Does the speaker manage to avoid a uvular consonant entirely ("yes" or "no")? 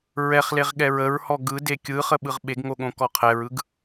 no